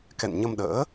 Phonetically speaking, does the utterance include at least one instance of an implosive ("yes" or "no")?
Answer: yes